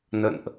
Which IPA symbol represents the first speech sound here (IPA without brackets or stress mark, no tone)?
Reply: n